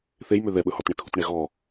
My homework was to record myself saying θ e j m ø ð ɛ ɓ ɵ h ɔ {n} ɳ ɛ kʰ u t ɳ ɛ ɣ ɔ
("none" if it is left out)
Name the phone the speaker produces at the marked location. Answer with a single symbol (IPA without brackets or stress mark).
t